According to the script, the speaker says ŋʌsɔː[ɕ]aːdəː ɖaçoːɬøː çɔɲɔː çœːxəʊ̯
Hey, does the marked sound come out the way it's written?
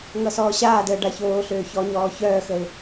yes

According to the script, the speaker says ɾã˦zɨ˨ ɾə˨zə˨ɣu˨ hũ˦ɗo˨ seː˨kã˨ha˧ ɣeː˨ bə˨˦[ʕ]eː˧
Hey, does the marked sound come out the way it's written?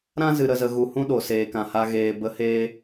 no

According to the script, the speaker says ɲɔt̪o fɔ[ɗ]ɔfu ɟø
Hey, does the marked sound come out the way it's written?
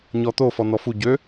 no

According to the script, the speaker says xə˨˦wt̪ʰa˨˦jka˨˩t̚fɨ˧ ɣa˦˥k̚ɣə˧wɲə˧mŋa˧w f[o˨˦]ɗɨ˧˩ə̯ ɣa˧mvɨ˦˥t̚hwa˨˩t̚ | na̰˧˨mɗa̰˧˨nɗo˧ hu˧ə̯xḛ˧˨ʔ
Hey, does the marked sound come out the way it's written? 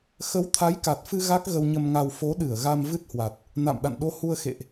yes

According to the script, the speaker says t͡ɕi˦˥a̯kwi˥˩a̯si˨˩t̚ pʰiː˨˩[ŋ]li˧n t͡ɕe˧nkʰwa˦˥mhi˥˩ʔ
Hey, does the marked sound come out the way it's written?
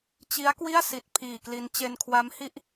no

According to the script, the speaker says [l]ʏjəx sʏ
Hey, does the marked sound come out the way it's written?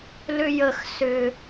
yes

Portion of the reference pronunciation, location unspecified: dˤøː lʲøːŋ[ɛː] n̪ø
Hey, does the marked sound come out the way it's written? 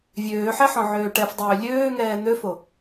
yes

